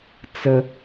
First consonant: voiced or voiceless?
voiceless